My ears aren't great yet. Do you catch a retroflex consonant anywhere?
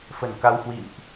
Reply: no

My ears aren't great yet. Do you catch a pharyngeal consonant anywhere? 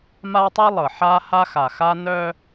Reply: yes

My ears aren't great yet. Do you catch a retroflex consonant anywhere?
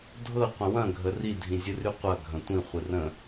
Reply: no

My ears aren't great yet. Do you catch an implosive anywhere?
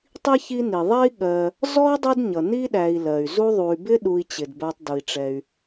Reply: yes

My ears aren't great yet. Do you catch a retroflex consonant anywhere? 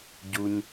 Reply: no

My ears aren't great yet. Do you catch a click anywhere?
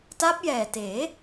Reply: no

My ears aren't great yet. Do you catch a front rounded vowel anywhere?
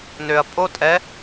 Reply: yes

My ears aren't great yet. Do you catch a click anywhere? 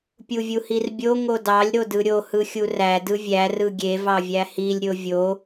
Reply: no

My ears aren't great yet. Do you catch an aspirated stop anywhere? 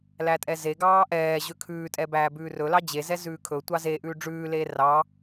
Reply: yes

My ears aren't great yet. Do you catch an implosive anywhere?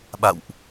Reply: yes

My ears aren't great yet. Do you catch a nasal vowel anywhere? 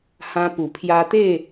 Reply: yes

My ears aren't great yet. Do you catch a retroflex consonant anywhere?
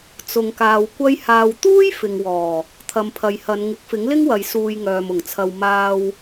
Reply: no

